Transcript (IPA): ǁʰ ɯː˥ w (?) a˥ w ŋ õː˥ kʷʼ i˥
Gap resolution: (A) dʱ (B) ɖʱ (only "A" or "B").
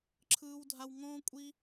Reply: A